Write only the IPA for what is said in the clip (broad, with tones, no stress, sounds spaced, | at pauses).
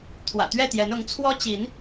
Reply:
t̪ʰ w ä̰˨˩ t̪ ɥ ɛ˥˨ t̪ j ɛ˨˦ n ʊ˨˦ ŋ t͡sʰ w ɔ˦ t͡ɕ i˨˦ n